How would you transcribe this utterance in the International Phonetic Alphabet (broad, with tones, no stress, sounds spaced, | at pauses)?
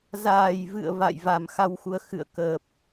z aː˧˩ j v ɨ̰˧˨ ə̯ v a̰˧˨ j v a˨˩ m x a˧ w x u˨˦ ə̯ x ɨ̰˧˨ ə̯ k əː˨˩ p̚